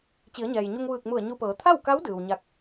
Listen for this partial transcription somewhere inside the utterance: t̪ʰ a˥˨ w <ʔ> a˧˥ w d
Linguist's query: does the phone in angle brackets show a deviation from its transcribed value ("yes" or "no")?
yes